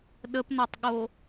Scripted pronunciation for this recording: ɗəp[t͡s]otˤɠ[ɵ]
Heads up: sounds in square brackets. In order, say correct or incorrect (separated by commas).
incorrect, incorrect